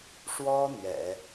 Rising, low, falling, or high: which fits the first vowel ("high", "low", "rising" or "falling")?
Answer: high